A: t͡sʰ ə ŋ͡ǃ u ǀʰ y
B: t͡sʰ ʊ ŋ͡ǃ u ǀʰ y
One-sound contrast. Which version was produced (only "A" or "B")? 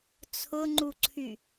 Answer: B